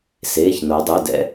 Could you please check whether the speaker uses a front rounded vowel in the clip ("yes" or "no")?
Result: yes